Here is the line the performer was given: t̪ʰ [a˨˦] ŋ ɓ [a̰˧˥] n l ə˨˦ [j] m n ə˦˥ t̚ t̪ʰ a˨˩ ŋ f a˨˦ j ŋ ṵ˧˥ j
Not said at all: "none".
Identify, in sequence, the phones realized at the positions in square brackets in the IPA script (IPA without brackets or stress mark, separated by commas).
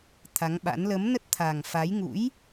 a˨˦, a̰˧˥, none